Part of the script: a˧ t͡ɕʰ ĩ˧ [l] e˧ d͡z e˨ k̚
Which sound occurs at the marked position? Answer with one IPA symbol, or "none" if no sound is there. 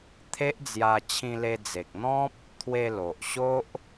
l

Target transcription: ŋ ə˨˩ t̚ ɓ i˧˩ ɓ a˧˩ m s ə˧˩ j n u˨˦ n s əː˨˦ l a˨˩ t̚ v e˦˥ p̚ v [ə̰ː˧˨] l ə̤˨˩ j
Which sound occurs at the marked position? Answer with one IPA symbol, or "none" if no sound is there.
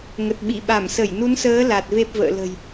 ə̰ː˧˨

